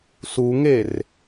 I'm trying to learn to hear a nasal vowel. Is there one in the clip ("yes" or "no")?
no